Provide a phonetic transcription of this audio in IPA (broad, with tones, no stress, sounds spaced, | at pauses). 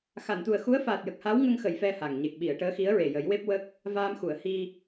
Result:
x a˨˩˨ n t̪ u˨˩ ə̯ x u˧˥ ə̯ f aː˨˩ t̚ j ə˨˩ k̚ h a˧˥ w ŋ ə˧ ŋ x ə˨˩˨ j f ɛ˧ h a˨˩ ŋ ɲ e˨˩ k̚ ɓ i˨˩˨ ə̯ ʈ əː˧˥ x i˧˥ ə̯ ɹ e˨˩ j ə˨˩˦ j w e˦˥ p̚ w ə˦˥ k̚ | v aː˧ m x u˨˩˨ ə̯ h i˧